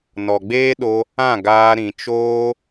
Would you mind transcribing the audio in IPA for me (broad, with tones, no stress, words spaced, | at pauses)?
nɔ˨ɡ͡beː˦ɗo˧ | ã˦˨ ɡaː˧ ɾĩ˨t͡ʃoː˦